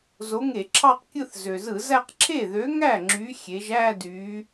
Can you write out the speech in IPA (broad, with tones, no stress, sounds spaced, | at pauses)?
z o˨˥ ŋ e˧˩˧ ǁʰ ɑ˥˧ q kʲ ɯ˥˧ θ z ø˩ z ɯ˧˩˧ z æ˥˧ q ǁʰ e˥˩ ð ø˨˥ ŋ æ˥˩ ŋ͡ǁ y˨˥ xʲ e˩˧ ʒ æ˥˧ d y˩˧